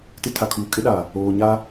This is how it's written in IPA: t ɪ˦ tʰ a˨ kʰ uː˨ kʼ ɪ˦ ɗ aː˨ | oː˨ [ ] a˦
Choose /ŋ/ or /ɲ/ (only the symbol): ɲ